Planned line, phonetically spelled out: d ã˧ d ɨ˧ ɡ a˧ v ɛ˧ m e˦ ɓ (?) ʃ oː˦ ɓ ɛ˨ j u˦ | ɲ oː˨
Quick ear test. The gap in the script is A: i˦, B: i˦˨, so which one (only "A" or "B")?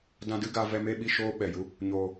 B